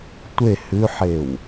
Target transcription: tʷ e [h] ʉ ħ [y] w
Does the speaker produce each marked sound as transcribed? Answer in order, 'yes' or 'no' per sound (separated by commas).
yes, no